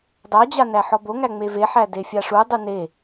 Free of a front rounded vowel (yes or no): yes